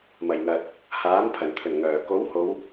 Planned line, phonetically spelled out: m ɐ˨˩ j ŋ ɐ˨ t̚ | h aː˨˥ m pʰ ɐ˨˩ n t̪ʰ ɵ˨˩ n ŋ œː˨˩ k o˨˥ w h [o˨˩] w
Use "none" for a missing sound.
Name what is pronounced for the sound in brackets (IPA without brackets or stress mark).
o˨˧